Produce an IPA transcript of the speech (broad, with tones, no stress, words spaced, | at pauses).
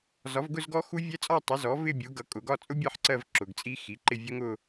zɒ˩˥vɡʊ˥˧zɡɔ˦˥ xu˦˥vʲɛ˦˥t͡sʼɒ˥˧ tˤʊ˩˥zɔ˩˥ vɪ˥˧bʲu˩˥ɡʌ˩˥ kʼʊ˩˧ɡɒ˥˧ t͡sʼʊ˦˥ bʲɜ˥˧ħǀɜ˥˧v ǁʊ˩˧ɡt͡sʼi˦˥xi˩˥ǃɪ˥˧ vʲʊ˦˥ŋʊ˥˧